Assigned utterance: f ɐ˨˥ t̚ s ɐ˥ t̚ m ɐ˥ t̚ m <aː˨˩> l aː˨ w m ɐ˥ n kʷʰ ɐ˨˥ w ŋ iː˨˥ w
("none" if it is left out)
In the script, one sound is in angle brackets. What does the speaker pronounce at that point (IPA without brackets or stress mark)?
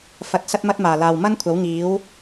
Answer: aː˨˩